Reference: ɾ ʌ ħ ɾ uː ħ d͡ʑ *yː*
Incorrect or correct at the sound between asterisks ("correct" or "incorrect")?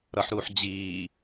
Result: incorrect